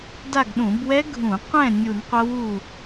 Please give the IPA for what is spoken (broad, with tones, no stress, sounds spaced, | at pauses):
d a˦˨ ɡ ɗ ũ˧˩˧ b w ɛ˦˥ ɡʱ ũ˧˩˧ qʷ ɛ̃˦˨ nʲ u˧˩˧ n qʷ ʌ˦˥ w u˦˨